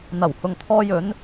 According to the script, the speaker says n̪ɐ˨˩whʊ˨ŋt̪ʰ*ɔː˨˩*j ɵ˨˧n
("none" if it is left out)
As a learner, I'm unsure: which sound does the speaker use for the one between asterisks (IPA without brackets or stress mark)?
ɔː˧